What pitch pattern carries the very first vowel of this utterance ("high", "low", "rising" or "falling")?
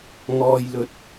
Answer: low